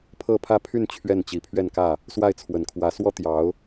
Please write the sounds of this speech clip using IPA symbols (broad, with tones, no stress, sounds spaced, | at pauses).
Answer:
pʰ ɤ˥˧ pʰ ä˥˧ pʰ y˥˧ n t͡ɕʰ ɥ ɛ˥˩ n t͡ɕ i˨˩ pʰ ɥ ɛ˥˧ n k ä˥˩ | s w a˥˩ ɪ̯ t͡sʰ w ə˨˩ n kʰ w ä˧˥ s w ɔ˥ t̪ j ɑ˧˥ ʊ̯